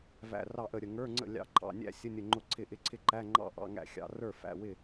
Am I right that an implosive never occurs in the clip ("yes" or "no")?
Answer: yes